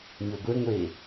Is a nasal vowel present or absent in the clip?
absent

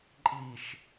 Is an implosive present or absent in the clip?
absent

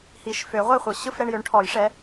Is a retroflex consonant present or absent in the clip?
present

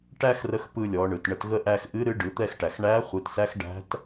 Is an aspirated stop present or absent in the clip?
absent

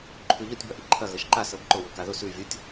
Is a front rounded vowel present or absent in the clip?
absent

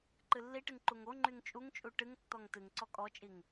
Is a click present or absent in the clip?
present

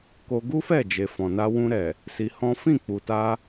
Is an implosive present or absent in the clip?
absent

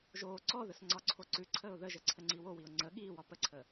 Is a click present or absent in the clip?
present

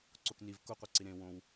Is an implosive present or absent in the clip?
absent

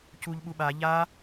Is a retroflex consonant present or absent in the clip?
absent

